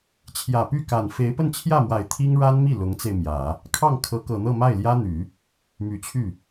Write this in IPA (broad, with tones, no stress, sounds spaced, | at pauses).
t͡ɕʰ j ä˨˩ p y˥˩ k a˨˩ n f e˧˥ ɪ̯ p ə˥˧ n t͡ɕʰ j ä˥˩ m w a˨˩ ɪ̯ t̪ʰ i˥ ŋ ɻ a˥ n m i˥˩ l ʊ˧˥ ŋ t͡s e˧ ɪ̯ m j ä˨˩˦ | kʰ ɑ˥˩ ŋ kʰ ɤ˧˥ k ɤ˨˩ n̪ ɤ˥˧ m a˥˩ ɪ̯ l j ä˥ n̪ y˨˩˦ | m y˨˩ t͡ɕʰ y˥˩